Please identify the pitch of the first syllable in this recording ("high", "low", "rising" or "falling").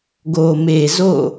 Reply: low